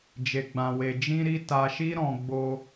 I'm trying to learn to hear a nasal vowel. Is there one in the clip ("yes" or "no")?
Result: yes